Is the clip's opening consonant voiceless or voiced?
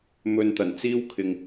voiced